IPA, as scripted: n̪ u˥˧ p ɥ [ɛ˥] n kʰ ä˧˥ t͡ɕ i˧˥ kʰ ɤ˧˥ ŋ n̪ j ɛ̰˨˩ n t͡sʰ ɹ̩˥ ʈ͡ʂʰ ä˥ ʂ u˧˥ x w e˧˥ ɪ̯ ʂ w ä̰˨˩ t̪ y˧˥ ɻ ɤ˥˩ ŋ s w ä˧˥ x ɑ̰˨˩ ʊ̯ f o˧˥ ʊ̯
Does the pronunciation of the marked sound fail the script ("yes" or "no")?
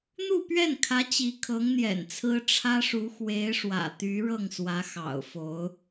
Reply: yes